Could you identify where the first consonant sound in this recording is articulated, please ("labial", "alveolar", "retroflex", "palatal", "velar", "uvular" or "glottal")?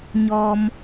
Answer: palatal